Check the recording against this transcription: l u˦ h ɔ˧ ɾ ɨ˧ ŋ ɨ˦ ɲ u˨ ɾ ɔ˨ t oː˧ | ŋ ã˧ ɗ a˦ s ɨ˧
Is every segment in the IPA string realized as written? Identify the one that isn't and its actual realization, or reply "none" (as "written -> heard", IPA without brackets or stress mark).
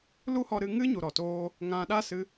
none